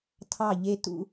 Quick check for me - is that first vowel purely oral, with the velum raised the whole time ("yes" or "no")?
yes